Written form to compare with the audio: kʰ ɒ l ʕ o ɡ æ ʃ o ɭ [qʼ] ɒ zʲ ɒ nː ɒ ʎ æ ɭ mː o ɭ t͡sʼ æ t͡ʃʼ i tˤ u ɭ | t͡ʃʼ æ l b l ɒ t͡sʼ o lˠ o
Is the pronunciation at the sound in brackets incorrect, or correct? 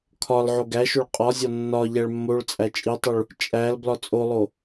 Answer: correct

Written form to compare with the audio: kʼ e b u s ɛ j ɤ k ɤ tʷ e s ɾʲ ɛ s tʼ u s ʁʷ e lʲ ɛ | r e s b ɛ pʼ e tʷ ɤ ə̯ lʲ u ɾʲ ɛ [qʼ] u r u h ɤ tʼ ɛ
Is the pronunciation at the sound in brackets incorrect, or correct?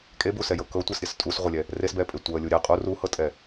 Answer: correct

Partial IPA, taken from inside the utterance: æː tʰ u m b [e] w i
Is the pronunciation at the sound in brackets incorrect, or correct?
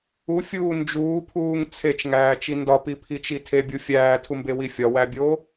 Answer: correct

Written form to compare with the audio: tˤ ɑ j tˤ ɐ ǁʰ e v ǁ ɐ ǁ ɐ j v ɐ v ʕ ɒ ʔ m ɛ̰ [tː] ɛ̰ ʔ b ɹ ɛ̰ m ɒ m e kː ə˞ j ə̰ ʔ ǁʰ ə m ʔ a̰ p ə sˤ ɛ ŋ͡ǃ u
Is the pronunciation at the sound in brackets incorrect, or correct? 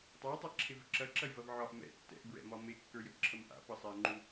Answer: correct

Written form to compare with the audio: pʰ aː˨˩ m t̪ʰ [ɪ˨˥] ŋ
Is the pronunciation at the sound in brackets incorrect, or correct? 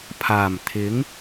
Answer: correct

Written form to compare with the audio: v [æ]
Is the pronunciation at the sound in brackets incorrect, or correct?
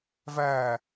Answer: correct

